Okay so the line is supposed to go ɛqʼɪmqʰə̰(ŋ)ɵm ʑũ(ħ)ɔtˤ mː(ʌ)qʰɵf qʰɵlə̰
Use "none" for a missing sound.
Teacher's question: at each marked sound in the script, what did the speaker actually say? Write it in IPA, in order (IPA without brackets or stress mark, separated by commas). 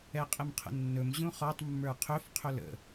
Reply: nː, χ, ə˞